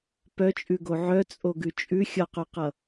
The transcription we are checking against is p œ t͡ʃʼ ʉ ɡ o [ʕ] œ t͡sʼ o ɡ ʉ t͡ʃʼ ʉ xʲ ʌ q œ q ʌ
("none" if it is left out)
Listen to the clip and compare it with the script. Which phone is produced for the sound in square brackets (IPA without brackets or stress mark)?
ʕ